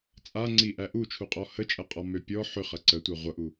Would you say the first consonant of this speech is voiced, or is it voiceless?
voiceless